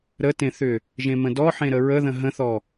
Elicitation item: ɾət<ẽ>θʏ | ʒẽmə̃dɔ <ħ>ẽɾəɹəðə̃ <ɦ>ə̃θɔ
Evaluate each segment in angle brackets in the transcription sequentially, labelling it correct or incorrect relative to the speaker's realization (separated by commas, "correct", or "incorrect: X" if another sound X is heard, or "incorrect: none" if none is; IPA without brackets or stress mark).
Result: correct, correct, correct